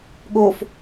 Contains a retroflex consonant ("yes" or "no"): no